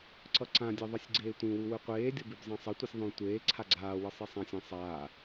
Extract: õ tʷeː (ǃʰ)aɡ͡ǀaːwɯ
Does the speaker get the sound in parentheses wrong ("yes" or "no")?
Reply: yes